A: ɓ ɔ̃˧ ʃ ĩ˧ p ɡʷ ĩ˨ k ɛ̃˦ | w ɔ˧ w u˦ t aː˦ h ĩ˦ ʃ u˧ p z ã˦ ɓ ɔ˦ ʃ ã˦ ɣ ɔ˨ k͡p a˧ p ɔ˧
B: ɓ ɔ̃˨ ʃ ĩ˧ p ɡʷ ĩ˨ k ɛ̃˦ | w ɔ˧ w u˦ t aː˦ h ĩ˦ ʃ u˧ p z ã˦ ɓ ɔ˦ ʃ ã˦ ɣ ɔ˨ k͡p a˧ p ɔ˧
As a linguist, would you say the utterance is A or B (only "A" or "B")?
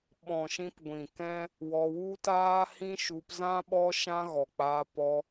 B